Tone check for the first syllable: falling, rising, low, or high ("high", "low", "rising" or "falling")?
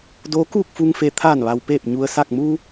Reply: rising